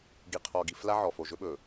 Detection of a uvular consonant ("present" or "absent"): present